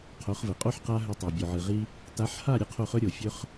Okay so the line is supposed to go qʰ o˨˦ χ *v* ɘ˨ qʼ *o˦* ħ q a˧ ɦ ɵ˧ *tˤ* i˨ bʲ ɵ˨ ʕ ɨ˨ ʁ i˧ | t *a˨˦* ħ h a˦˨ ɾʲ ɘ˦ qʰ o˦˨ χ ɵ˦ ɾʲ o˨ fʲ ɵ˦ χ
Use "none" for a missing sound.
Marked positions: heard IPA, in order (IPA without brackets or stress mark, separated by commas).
v, o˦, tˤ, a˨˦